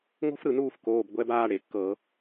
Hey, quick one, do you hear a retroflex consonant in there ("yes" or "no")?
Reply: yes